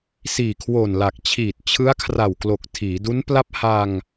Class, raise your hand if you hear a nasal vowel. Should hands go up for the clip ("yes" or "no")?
no